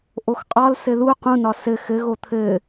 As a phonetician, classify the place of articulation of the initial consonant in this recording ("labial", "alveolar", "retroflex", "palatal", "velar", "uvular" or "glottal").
glottal